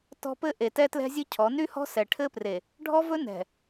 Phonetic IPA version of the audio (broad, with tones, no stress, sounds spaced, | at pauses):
t ɔ̤˦ p ɘ˦ ʔ e˨ t ɛ˦ t l ɛ̤˦ zʲ ɘ˦ cʰ ɔ˨˦ n y˦ h ɔ̤˦ s ɛ˨ ʈʰ ɘ˦ p r e˨ | ɖʱ ɔ˦ v ɵ˦ n ɛ̤˨